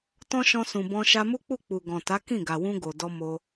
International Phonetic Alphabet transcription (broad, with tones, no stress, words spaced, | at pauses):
tɔ̃˦ʃɔ̃˧sũ˨bɔ̃˧ ʃa˧mu˦k͡pu˦˨k͡pu˨ ɡɔ̃˨ta˨˦ kĩ˦˨ɡa˨wũ˧ɡo˨ dɔ˧ mo˧